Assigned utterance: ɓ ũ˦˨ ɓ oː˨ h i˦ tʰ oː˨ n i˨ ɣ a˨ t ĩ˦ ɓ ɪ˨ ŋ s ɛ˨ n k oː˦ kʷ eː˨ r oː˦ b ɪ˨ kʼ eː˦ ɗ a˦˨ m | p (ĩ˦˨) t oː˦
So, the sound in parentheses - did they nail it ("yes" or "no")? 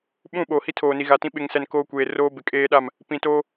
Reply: no